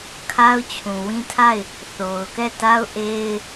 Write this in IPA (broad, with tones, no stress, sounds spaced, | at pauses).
kʰ a˦ ʊ̯ t͡ɕʰ ũ˨ w ĩ˦ tʰ a˦˨ ɪ̯ | θ o˨ ʊ̯ k ɛ˦˨ t a˦ ʊ̯ ʔ e˦ ɪ̯